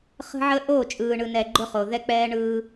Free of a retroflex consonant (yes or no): no